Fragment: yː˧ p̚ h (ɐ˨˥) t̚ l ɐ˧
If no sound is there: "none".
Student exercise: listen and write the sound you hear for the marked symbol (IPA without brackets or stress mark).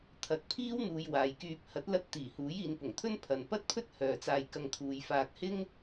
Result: ɐ˨˥